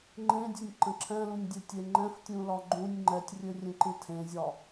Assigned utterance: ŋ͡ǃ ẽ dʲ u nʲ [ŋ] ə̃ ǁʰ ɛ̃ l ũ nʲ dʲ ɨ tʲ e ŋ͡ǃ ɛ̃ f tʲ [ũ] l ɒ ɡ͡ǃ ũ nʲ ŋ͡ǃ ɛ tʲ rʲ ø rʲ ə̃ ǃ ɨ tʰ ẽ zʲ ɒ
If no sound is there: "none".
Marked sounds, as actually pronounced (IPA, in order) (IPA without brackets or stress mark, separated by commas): ǃ, ũ